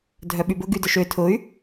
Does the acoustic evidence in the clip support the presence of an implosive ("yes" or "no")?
yes